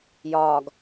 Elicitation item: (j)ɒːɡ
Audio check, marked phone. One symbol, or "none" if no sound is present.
j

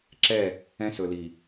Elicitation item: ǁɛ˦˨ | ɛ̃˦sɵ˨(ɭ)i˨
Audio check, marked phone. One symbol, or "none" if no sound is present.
l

